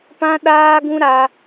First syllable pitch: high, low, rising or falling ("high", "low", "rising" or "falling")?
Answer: high